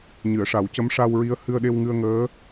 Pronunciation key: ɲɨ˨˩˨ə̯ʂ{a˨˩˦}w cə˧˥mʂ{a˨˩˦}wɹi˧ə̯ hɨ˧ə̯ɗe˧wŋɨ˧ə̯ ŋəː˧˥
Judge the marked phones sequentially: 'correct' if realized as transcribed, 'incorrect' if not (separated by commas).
correct, incorrect